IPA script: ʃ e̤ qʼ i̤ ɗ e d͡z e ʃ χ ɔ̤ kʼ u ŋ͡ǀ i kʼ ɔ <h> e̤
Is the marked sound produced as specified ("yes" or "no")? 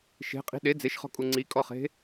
no